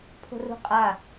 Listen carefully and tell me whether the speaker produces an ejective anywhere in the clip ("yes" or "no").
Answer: yes